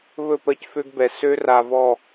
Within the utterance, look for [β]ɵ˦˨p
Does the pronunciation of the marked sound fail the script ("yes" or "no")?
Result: no